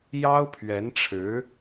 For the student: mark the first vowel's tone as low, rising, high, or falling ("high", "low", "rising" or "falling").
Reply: high